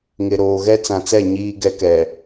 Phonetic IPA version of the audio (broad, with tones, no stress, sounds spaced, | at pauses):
ŋ ɪ˨ ɾ oː˨ ɣ ɛ˦ t͡s ã˨ t͡s ɛ˦˨ ɲ iː˦ ɡ ɛ˦ k ɛ˨